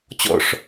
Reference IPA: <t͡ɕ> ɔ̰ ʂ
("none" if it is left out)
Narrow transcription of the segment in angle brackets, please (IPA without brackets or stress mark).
t͡ɕ